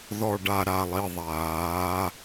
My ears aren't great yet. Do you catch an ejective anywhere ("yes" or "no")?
no